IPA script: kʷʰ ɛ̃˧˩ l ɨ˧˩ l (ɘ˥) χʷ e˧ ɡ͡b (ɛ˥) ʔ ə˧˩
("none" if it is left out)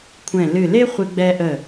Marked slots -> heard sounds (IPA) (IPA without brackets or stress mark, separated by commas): e˥, ɛ˧